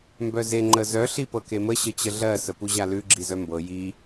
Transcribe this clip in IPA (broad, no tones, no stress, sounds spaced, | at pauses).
m b œ z e ŋ͡ǃ ə z œ ɬ i p ɤ k e m ə ɕ ə t͡ɕ ə ɮ ɜ s ə p u ʑ a l ʉ ɡ͡ǁ i z œ m b ɤ j i